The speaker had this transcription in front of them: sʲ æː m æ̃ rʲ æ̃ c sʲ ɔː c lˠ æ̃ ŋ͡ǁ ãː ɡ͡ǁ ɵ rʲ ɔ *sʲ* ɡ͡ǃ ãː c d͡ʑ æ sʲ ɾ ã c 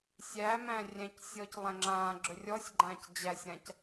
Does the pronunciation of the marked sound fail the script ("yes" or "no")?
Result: no